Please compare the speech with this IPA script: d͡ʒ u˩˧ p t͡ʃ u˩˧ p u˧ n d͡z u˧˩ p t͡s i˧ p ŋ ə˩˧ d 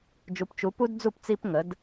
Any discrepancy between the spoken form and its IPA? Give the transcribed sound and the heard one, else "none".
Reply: n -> d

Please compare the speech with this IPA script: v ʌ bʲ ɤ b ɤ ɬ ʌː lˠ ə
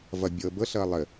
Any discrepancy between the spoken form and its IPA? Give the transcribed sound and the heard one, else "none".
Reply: none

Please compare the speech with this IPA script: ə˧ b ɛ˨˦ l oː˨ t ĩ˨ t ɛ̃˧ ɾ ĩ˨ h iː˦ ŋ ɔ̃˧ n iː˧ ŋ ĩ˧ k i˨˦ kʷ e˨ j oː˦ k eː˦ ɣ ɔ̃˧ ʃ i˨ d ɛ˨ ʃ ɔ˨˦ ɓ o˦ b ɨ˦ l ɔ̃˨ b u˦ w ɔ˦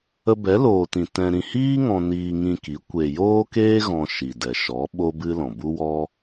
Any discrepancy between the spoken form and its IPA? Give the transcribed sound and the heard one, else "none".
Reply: none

